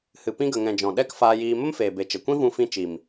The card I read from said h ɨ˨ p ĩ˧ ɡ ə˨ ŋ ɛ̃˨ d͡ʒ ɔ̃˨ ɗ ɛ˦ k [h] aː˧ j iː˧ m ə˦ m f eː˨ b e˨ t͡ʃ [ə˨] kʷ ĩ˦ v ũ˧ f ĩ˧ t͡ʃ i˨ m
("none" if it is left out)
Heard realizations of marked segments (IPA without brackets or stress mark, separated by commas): f, ə˨